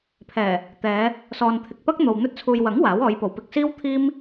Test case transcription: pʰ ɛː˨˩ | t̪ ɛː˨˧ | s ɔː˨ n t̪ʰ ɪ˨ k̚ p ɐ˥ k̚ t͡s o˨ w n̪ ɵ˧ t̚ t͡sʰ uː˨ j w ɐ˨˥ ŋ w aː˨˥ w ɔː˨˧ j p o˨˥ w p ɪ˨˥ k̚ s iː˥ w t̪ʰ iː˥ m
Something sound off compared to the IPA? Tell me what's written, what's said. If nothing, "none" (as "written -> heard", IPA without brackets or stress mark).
t͡s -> n̪